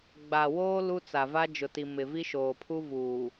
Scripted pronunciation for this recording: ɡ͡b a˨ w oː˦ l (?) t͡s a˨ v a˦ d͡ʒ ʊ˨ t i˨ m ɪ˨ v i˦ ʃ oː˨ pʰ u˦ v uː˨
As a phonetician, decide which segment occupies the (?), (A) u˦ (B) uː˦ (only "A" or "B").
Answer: A